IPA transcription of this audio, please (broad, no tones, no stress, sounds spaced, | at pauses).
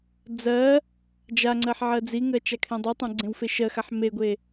d͡z ɜ | d͡ʒ a ŋ͡ǀ ɜ ħ ʕ ɜ d͡z i ŋ ɜ t͡ʃ a kʰ ẽ dˤ i tˤ ẽ ɡ͡ǀ ẽ w f e ʃ ɜ x a ħ m e ɡʷ e